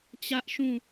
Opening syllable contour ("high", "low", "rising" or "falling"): high